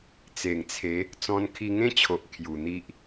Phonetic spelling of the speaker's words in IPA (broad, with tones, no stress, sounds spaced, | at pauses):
t͡s e˨˩ ŋ t͡sʰ e˨˦ | t͡s ɔ̃˧ n kʰ i˧ ŋ ẽ˦ t͡ɕʰ o˨ ʔ kʰ j u˨˩ n̪ i˦ ʔ